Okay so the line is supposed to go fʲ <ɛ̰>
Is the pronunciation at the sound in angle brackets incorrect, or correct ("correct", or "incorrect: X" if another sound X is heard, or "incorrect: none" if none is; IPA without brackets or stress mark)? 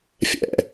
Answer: correct